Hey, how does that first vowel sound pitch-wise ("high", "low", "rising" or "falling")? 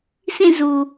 falling